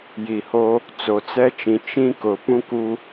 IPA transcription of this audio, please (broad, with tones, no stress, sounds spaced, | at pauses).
j i˨ h o˦ | t͡s o˨ t͡s ɛ˦ t͡ʃ ĩ˨ t͡ʃ ĩ˦ k ʊ˨ p ũ˦ k u˦